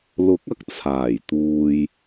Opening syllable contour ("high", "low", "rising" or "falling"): rising